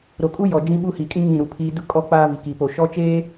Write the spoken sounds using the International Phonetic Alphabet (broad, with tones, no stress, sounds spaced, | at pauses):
ɾ o˨ kʼ u˦ j ɔ˨ d͡ʒ ĩ˦ ɓ u˦ h i˨ kʼ ĩ˦ ŋ ĩ˦˨ ɾ u˨ pʰ iː˦ d ʊ˦ kʼ ɔ˦ k͡p aː˦ v i˨ k iː˨ p o˨ ʃ ɔ˦ t͡ʃ eː˦